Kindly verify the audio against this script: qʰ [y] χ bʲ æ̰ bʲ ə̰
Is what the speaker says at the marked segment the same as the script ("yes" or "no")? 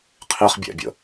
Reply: no